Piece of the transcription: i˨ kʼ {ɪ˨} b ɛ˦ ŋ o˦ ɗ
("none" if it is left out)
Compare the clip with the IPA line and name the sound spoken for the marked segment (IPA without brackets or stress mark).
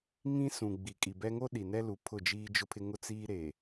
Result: i˨